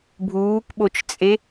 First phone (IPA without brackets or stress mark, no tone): bʱ